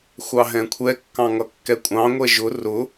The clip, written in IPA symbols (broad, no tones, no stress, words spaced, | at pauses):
xʷɑɦɛ̃kʷʰɛkːɑ̃ ŋʌkːɛkʷʼɑ̃ŋʷɛ ʒʊ rʊ